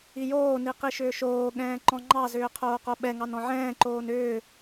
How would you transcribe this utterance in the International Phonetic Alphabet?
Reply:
ijoːni qiʃʏːʃoːɠɛ̃ː ǃɔ̃ŋ͡ǃɑzʏː qʰoːqoɓɛŋɑn ɔ̃ʕɛ̃ːǃoːn ʏː

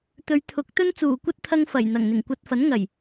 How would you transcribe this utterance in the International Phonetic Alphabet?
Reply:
t̪ɵ˨˧ɥt̪ʰʊ˨˥k̚t̪ɵ˥n t͡suː˨˩kʷɐ˥t̚t̪ʰɐ˧ŋ fɐ˨˩j n̪ɐ˨˩ŋn̪ɪ˨˩ŋkʷɐ˧t̚ fɐ˨˥nŋɐ˨˩j

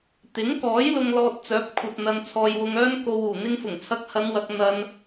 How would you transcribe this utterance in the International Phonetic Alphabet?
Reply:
t̪ɪ˨˥ŋkɔː˨˥j lʊ˧ŋlɔː˧t̚ t͡sœː˨˥p̚kʷʰɐ˨t̚ n̪ɐ˧nt͡sʰɔː˧jwʊ˧ŋœː˥n ko˨wuː˨˩ n̪ɪ˧ŋfʊ˨˩ŋ t͡sʰɐ˧k̚hɐ˨˧nwɐ˨k̚ n̪ɐ˨n

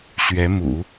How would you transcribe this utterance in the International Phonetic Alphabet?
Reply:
ɕɥɛ˧˥mṵ˨˩˦

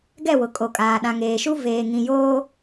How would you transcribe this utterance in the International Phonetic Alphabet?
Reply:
ɡɛ˦˨wʊ˨ kʼo˨kʼaː˨ ɗã˨ŋeː˨ʃu˦ veː˨ŋĩ˨joː˦

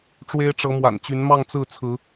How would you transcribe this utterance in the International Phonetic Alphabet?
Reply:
ʈ͡ʂwe˦ɪ̯ʈ͡ʂɤ˨˦mwa̰˨˩nt͡ɕy˨˦n mɑ˥˨ŋt͡sɹ̩˥˨t͡sʰɹ̩˨˦

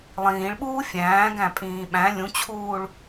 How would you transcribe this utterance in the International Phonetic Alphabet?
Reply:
lˠĩːɭɓuː fʲæ̃ːɡæ̃pʼĩː ɓæ̃ lʲũt͡ɕʰuːɭ

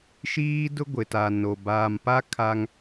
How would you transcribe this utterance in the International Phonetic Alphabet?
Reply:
ʃiː˦dʊ˦ɡʷɪ˨ta˨ no˨ baː˨mpa˦ kʰa˦ŋ

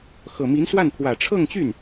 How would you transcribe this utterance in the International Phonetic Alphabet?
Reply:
xɤ˨˩mi˧˥nswa˥˩n t̪ʰwä˨˩ʈ͡ʂʰɤ˥˧ŋt͡ɕy˥˩n

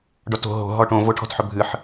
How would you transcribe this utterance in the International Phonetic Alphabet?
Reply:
ɖɔto̤ ɦo̤ ɦɔʈõ voʈʰɔ̤tħɵbʱɨħ

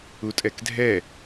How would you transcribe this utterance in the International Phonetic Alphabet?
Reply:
utʼɛkdʱɛ

